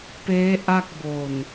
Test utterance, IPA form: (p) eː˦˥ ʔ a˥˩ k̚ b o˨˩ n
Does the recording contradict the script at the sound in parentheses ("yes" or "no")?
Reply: no